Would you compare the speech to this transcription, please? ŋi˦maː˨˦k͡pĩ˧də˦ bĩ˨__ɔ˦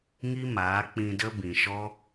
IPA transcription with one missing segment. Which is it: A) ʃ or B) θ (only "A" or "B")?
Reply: A